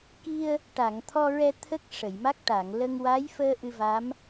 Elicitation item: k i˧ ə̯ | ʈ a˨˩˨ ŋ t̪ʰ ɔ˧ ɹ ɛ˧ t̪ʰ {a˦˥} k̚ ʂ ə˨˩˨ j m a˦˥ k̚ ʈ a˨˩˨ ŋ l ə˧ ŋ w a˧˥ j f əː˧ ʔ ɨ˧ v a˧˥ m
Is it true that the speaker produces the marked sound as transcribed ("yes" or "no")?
no